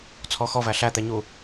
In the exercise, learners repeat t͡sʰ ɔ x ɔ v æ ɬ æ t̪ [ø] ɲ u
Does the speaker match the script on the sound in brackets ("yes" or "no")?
no